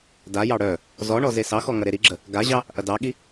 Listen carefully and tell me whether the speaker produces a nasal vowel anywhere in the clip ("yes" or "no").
no